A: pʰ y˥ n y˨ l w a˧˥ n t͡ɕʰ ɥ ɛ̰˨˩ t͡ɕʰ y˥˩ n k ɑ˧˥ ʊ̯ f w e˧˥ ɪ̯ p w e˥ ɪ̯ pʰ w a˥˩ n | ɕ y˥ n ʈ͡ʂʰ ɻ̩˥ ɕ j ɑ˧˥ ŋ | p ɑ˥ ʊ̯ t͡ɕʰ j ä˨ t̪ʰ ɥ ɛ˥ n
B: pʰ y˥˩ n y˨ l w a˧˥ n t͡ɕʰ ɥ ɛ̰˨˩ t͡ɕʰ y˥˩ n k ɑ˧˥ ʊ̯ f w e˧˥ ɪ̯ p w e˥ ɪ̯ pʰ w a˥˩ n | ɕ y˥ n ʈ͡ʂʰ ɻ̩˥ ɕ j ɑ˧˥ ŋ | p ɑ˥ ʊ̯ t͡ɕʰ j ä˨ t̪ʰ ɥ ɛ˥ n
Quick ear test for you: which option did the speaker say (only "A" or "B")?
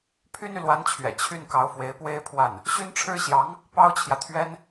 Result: A